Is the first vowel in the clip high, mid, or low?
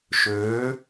mid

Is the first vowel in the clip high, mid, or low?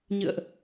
high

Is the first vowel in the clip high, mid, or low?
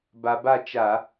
low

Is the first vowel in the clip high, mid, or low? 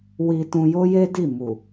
high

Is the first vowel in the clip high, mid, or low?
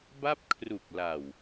low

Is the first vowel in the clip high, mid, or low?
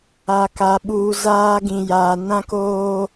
low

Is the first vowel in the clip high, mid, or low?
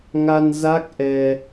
low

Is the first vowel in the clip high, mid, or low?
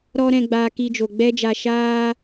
mid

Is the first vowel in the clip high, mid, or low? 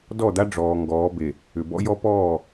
mid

